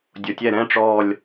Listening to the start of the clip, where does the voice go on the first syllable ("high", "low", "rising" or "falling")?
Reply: low